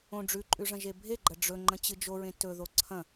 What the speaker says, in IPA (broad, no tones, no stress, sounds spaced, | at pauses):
õ ɖ͡ʐ ʉ ǃʼ ʉ ʐ ɐ̃ ʒ e bʱ e ɡ͡ǃ ɐ ɖ͡ʐ ɵ ŋ͡ǃ ɐ̃ t͡ɕ ɨ d͡ʒ o ɹ ẽ t ɵ ð o ǀʰ ɐ̃